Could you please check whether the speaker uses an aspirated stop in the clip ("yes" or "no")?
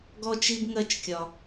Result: no